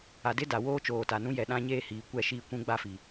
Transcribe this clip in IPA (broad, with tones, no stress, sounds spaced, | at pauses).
a˨ d ɪ˦ d a˨ w oː˦ t͡ʃ oː˨ t a˨ n ũ˦ j ɛ˨ ɗ ã˦ ɲ eː˦ h iː˨ kʷ ɛ˦˨ ʃ i˦˨ kʷ ũ˦ ɡ͡b a˦ f i˨